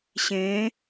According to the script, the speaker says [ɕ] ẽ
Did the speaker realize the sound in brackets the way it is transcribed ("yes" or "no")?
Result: yes